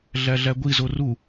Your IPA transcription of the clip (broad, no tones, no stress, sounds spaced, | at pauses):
ɮ æ ɮ æ ɡʷ i z o r u